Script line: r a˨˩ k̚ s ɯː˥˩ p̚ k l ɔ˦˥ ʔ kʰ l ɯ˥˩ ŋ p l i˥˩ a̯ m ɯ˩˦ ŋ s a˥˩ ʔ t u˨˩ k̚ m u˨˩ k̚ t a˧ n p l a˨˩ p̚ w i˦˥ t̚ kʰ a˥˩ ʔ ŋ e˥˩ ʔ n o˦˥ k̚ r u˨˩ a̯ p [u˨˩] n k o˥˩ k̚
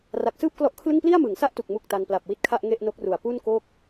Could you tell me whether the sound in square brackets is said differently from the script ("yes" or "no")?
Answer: yes